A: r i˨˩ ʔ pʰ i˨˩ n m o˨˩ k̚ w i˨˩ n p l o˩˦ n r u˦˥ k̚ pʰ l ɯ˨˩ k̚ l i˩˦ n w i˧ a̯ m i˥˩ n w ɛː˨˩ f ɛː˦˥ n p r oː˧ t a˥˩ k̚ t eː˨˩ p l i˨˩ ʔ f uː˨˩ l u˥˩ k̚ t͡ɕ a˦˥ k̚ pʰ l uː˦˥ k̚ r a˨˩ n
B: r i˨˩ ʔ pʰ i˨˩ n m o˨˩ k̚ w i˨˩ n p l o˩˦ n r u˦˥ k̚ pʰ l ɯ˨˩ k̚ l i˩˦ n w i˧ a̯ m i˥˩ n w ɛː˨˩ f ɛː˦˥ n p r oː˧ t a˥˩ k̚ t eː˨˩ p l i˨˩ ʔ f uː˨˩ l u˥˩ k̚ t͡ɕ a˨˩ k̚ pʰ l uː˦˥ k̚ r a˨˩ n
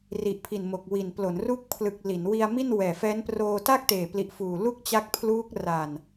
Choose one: A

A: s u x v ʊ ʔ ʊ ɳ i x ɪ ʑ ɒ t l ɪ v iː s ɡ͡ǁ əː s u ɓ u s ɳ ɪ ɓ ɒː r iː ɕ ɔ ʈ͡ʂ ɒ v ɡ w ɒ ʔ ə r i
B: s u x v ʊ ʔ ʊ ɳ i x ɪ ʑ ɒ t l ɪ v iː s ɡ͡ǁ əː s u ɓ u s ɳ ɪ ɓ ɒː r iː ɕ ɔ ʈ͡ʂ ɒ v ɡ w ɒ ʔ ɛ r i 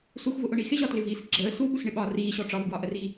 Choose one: A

